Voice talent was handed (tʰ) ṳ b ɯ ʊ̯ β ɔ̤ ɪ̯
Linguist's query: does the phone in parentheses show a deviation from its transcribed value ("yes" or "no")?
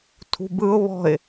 no